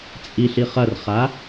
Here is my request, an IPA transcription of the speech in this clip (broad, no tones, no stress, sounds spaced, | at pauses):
t͡sʼ i ɬ i χ ɐ r χ a